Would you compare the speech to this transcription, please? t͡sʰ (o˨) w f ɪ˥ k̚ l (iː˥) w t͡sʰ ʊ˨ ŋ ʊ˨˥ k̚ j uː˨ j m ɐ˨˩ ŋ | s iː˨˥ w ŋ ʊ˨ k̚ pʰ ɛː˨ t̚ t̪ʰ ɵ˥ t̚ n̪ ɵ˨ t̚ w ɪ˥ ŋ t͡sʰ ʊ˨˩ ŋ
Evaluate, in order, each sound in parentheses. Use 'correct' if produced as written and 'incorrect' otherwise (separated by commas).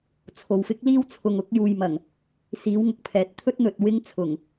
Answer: correct, correct